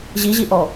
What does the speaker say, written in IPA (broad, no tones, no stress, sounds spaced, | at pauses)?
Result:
ʑ i ʑ i ʔ ɔ